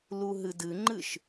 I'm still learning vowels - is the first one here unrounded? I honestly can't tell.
no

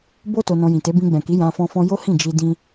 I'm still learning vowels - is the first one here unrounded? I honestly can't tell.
no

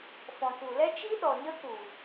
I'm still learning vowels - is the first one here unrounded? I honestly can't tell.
no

